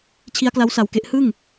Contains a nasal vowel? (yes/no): no